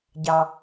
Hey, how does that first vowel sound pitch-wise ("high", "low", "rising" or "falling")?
low